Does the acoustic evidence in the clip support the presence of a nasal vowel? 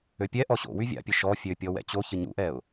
no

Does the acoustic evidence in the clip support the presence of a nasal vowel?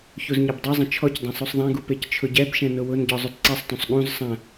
yes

